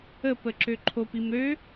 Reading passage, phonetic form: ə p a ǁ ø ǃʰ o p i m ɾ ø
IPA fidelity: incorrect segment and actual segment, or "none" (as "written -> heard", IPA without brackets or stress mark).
a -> ə